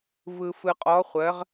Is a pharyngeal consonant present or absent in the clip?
absent